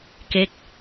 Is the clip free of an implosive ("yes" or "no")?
yes